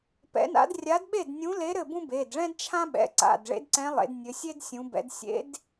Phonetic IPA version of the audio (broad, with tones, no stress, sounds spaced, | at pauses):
p ɛ̰˧˥ n a̰˧˥ d rʲ a˧˥ d ɓ e˥˨ d nʲ ũ˧˥ l e˧˥ ɾ ɘ˥˨ b ũ˥ b e˩˧˩ d ɭ ɛ̃˥ d t͡ʃʰ ã˥ ɓ ɛ̰˩˧˩ ǀ a̰˩˧˩ d ɭ ḛ˧˥ d ǀ ɛ̃˧˥ lˠ ḛ˩˧ d nʲ ɘ˩˧ sʲ e˥ d sʲ ũ˩˧ b ɛ̰˩˧ d sʲ ḛ˧˥ d